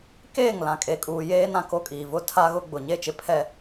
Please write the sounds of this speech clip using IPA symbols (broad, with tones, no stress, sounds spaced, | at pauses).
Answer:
k eː˦˨ ŋ l ã˨ kʼ e˨ kʼ uː˨ j eː˦ n ã˨ k o˦ kʼ iː˨ v ʊ˦ tʰ a˦ ɣ ʊ˦ ɡ͡b ʊ˨ ɲ e˦˨ t͡ʃ ɪ˦ pʰ ɛ˦